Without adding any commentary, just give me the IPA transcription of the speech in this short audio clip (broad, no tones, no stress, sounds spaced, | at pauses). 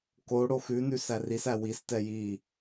k o ɽ o x ʉ n ʉ s æ r i s æ w i s t ɛ j i